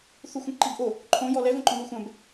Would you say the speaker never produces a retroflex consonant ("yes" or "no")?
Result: yes